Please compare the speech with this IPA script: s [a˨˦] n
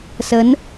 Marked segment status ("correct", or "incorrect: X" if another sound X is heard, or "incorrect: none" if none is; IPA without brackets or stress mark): incorrect: ə˨˦